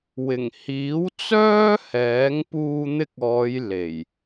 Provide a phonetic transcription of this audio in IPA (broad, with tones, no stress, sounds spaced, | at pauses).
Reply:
w ɪ˨˩ ŋ h iː˨˥ w t͡s œː˥ h ɛː˨˥ ŋ p uː˧ n̪ ɪ˧ k̚ ɔː˨˧ j l e˨˩ j